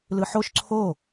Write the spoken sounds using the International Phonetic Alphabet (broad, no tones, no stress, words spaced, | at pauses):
lɯħoʃ ǀʰo